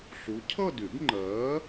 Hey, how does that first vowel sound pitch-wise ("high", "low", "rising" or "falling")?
rising